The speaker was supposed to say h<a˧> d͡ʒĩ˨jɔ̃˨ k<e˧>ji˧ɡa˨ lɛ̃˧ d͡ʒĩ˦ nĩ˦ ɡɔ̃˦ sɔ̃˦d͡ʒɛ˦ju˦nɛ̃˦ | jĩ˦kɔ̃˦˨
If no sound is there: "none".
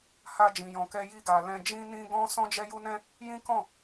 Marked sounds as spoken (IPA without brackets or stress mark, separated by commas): a˧, ɛ˧